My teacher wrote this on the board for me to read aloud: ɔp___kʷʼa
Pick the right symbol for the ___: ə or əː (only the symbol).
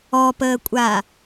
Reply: əː